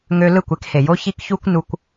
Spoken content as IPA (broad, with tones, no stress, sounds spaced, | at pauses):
ŋ ø˧ l ɯ˦˨ kʷ e˧ k h e˨ j o˧ ç i˧ k ç u˦ kʷ n u˧ kʷ